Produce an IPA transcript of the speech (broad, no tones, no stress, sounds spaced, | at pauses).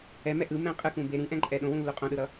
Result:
ɛ m ɛ ʔ ɯ m ɛ̃ qʼ ɯ k ũ b e ɾ ĩ ʔ ɛ̃ ǃʼ ɛ ɗ õ w ũ lː u qʼ õ ɗ ɯ ɾ ʌ